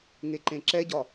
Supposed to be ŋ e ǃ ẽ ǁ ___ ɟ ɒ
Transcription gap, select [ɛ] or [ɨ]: ɛ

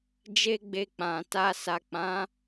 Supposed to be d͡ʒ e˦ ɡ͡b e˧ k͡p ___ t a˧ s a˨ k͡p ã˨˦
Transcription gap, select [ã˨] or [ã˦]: ã˨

